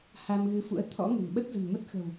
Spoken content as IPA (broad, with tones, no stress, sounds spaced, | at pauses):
h a˧ m ɣ ɨ˨˦ f ṵ˧˥ ə̯ t̪ʰ ɔ̰˧˥ ŋ ə̤˨˩ n ɓ ə˦˥ t̚ z ə̤˨˩ n m ə˦˥ t̚ x ə̤˨˩ w